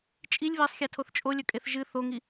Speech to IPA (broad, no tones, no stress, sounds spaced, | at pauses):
t͡ʃʼ i lʲ β e sˤ xʲ a tʰ o θ t͡ʃʼ o lʲ ɵ kʼ e θ ʒ ɨ θ o ŋ i